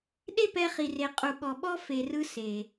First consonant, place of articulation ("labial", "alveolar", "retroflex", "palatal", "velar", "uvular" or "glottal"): alveolar